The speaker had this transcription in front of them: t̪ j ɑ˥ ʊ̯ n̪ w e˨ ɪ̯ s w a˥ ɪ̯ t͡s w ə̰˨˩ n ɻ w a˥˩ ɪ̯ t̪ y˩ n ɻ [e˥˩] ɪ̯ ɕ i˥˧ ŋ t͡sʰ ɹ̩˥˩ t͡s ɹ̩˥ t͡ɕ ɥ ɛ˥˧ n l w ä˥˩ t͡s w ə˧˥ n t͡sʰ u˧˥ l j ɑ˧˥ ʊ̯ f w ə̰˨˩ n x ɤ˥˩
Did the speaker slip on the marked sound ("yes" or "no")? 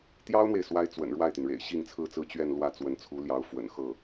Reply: yes